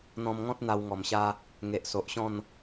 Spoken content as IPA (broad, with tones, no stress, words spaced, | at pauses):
n̪ɔ̃˧mŋɔ̃˦t̚ n̪a˧wŋɔ˨˩mɕa˦ | ŋe˨ʔso˨ʔɕɔ̃˥˧n